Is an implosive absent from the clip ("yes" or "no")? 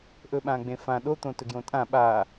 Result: no